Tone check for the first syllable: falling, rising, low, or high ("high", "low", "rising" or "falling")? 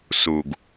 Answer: low